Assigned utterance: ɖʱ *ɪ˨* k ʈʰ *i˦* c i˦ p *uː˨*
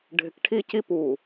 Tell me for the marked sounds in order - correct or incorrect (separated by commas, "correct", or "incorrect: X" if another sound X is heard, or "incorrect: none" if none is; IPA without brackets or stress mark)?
correct, correct, correct